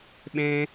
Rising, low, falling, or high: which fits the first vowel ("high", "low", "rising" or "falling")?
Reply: high